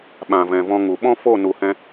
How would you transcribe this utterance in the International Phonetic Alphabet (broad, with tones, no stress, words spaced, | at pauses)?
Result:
ɓã˨vɛ̃˨vɔ̃˧ŋu˨ ɓɔ̃˦fo˦˨ nu˨hɛ̃˧